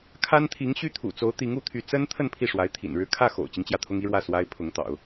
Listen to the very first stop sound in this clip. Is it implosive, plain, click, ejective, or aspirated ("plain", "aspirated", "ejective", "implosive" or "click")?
aspirated